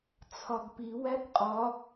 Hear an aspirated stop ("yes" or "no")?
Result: yes